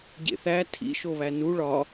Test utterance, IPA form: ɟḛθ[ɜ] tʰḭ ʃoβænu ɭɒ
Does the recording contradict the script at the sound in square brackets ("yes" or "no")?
yes